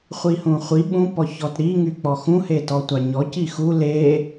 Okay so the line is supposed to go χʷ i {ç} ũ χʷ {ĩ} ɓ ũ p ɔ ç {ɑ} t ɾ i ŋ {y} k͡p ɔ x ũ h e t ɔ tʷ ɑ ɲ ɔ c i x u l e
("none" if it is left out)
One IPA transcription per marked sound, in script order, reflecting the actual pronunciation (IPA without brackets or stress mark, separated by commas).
h, i, ɔ, y